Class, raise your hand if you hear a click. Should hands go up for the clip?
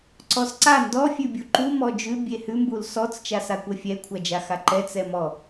yes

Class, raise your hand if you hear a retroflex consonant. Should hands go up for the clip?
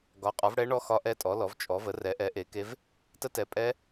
yes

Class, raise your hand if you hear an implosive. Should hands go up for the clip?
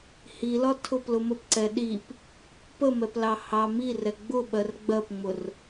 yes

